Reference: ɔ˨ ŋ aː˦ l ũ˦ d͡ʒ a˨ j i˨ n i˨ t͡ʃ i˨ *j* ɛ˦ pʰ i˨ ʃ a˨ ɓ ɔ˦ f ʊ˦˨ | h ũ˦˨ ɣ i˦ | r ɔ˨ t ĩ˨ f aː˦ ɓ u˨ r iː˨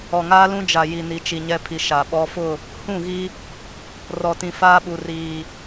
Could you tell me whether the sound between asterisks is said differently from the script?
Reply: yes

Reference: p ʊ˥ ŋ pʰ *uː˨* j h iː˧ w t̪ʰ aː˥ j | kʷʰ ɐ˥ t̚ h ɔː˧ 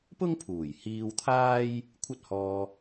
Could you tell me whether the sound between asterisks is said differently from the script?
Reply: yes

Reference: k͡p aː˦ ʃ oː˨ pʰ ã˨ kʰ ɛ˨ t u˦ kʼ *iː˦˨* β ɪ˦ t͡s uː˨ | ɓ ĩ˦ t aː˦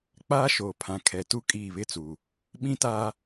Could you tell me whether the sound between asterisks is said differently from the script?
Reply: no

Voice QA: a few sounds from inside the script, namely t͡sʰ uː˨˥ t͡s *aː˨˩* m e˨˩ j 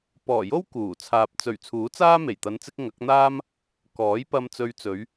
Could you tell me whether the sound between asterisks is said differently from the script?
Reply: yes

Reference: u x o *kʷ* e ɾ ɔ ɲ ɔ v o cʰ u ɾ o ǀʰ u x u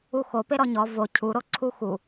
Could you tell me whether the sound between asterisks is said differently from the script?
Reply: yes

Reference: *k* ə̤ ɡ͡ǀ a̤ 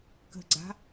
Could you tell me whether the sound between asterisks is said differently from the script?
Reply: no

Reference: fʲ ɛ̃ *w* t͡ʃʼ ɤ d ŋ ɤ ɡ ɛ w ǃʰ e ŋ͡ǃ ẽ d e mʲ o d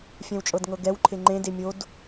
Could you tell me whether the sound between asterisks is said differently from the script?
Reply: no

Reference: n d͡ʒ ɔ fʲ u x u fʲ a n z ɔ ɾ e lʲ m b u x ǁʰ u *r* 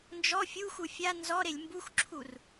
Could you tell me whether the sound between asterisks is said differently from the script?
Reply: no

